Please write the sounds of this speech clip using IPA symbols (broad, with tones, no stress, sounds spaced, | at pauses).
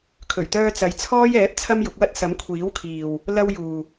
kʰ ɵ˨˩ ɥ t̪ œː˧ t͡s ɐ˨˥ j t͡sʰ ɔː˥ j ɛː˨˥ p̚ t͡sʰ ɐ˥ m j ʊ˨˥ k̚ w ɐ˥ t̚ s ɐ˨˥ m kʷʰ iː˨˥ w kʰ iː˨ w | l ɐ˧ w j uː˨